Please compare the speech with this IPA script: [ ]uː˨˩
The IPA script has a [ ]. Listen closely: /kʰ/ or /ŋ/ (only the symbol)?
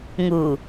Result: ŋ